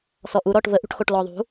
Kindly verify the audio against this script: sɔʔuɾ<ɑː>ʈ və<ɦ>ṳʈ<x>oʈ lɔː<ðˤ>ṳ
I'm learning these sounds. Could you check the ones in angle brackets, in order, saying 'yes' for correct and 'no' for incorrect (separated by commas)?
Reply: no, no, yes, yes